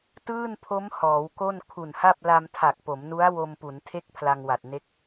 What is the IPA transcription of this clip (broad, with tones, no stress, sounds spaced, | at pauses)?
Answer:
t ɯː˥˩ n pʰ o˦˥ m h ɔː˩˦ w k o˥˩ n kʰ u˨˩ n h a˥˩ p̚ l a˧ m tʰ a˨˩ k̚ p o˩˦ m n u˦˥ a̯ w o˧ m p u˩˦ n tʰ e˥˩ k̚ pʰ l a˧ ŋ w a˨˩ t̚ n e˦˥ k̚